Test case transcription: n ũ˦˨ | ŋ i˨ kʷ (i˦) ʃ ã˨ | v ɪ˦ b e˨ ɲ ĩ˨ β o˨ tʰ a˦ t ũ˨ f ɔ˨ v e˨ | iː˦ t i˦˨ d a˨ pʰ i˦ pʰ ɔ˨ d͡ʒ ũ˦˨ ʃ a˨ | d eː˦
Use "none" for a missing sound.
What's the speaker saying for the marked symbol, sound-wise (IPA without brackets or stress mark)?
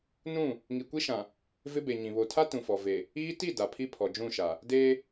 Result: i˦